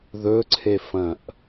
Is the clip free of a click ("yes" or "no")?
no